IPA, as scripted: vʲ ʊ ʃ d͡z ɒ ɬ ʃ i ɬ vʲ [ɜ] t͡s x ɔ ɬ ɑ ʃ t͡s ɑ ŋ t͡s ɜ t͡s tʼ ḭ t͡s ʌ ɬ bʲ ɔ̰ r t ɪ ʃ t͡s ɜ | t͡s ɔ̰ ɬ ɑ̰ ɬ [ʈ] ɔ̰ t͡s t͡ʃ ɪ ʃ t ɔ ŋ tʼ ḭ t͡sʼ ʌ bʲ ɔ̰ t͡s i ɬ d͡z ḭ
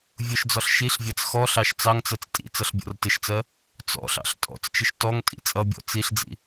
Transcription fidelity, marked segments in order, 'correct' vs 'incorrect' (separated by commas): incorrect, incorrect